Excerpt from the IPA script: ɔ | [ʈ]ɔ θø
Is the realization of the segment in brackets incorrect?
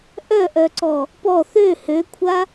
yes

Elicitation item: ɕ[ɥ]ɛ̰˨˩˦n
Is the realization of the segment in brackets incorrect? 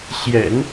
yes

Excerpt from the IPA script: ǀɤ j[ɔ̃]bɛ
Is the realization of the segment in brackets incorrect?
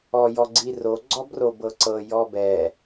yes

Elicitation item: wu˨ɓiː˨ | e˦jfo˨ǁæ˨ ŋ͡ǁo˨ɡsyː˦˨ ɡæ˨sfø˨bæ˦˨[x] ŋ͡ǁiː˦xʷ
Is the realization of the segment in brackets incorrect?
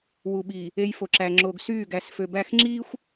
no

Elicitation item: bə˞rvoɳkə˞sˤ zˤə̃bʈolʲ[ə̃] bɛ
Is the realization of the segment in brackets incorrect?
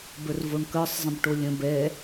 no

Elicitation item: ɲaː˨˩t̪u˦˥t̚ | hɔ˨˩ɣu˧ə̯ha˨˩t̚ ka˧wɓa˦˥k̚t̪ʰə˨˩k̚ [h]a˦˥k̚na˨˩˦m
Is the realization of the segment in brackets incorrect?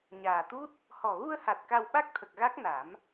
yes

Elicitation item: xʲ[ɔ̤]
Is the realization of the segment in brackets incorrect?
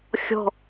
no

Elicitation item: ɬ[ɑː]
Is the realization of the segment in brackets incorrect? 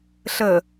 yes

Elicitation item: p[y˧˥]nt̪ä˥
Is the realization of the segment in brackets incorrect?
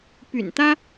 yes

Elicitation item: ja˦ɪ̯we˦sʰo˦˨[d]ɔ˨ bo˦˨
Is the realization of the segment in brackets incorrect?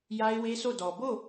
no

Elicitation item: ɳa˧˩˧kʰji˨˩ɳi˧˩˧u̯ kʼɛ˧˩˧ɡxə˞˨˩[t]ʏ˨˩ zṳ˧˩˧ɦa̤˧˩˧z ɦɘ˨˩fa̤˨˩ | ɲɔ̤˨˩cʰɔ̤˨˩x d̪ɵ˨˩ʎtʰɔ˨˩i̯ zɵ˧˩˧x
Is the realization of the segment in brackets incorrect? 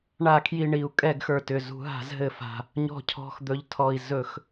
no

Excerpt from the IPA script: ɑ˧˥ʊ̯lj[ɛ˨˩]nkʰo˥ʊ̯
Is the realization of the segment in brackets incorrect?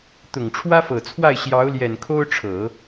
no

